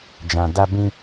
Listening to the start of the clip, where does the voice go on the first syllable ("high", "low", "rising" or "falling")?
low